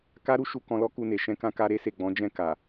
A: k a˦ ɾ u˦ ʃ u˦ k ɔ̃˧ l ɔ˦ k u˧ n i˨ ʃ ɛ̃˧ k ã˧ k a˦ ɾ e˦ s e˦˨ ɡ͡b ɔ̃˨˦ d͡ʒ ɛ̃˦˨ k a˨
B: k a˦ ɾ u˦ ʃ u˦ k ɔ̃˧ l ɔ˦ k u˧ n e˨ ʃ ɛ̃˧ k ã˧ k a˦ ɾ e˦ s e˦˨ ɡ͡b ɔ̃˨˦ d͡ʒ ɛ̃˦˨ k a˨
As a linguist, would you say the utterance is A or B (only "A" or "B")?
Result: B